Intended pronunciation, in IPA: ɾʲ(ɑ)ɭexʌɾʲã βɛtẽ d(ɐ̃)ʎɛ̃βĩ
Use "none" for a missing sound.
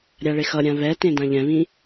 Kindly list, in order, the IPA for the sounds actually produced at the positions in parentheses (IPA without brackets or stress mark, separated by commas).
a, ã